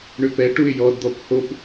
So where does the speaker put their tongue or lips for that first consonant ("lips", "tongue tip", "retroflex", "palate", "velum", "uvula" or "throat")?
retroflex